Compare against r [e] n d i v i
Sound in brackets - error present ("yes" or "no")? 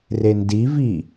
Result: no